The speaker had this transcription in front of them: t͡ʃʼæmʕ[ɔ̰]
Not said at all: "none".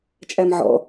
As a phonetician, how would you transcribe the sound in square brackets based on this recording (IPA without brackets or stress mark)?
ɔ̰